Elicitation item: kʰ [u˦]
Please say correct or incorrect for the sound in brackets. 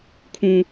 incorrect